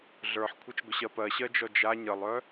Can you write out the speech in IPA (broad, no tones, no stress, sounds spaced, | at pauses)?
ɮ ə˞ ħ kʷʰ ə t͡ʃ ɡʷ ə ɕ ɜ p ɜ ɕ ɜ d͡ʒ ɔ d͡ʒ a ɲ ə lˠ œ